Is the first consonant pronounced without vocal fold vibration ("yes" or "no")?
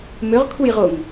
no